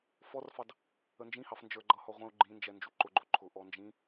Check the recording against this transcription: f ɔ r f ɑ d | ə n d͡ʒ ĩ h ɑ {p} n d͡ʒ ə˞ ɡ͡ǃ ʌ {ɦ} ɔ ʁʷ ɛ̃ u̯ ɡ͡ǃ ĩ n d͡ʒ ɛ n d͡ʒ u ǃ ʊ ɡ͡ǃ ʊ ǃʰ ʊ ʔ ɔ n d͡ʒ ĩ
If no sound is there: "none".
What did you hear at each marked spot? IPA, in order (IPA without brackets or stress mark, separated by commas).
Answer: f, h